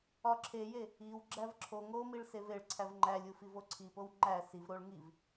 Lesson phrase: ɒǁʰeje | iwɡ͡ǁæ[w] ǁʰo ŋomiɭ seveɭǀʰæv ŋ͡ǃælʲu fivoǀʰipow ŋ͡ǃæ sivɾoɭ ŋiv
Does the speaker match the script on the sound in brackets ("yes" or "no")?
no